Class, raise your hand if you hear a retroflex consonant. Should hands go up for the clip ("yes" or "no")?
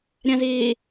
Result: no